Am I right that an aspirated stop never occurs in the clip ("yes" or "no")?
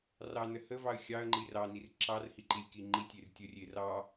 yes